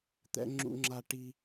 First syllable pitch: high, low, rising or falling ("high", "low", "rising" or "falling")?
high